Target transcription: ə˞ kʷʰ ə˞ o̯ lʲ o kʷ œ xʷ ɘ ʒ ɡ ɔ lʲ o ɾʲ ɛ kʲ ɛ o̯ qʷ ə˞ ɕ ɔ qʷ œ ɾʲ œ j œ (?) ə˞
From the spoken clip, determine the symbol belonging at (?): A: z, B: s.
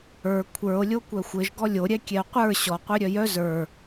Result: A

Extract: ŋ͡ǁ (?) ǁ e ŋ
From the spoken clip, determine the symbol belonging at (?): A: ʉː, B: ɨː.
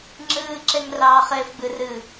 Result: B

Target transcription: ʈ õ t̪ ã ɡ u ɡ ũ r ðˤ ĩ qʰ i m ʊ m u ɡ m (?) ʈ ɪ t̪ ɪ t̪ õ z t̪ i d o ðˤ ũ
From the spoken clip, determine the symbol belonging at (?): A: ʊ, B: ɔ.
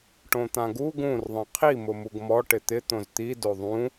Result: B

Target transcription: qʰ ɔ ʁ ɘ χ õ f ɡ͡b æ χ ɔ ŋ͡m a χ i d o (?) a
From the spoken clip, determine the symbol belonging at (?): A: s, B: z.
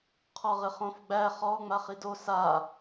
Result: A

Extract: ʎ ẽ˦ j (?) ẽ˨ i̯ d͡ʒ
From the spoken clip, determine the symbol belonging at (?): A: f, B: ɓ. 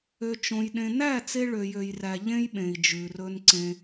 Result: B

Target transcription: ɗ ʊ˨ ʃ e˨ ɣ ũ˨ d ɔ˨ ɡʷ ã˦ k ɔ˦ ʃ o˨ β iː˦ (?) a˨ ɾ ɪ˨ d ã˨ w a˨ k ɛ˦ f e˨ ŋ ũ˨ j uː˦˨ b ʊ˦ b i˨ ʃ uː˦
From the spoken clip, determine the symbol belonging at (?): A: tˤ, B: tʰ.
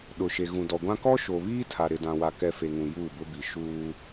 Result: B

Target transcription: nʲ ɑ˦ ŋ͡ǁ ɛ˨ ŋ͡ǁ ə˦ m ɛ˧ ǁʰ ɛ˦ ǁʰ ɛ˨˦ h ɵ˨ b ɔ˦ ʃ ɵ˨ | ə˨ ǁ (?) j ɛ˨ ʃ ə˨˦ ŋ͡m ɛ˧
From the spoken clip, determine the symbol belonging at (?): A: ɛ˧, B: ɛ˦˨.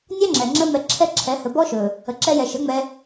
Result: A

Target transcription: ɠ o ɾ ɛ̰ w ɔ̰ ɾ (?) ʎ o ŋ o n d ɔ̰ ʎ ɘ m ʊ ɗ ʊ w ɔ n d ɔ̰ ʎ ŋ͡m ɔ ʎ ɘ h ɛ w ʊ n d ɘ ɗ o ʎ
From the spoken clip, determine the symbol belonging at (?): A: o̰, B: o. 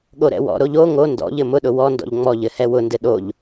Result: B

